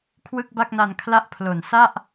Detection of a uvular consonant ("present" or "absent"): absent